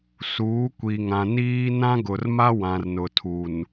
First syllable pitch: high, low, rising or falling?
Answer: rising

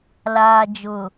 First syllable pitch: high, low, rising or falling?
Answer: low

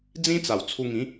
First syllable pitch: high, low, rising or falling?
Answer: high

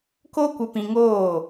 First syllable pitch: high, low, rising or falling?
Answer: high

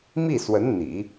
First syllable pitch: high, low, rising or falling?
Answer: falling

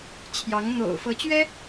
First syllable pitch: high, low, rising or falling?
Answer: rising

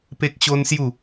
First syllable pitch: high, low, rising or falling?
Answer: high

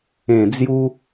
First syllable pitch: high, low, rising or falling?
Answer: low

